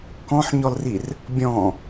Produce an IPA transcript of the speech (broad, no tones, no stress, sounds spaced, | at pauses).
k ɔ̃ ħ ɲ ɔ l r i r | bʲ ɔ̃